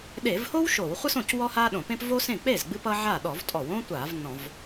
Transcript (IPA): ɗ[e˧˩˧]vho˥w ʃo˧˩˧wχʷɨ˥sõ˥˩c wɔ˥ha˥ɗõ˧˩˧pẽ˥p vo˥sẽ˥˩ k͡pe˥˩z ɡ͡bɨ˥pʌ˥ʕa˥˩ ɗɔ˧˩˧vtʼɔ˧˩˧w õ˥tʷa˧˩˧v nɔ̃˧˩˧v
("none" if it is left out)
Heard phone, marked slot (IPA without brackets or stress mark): e˧˩˧